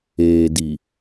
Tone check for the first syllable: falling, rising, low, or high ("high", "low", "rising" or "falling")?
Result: low